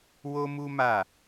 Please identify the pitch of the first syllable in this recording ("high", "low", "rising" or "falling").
high